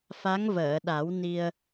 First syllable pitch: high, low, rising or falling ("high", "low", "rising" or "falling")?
rising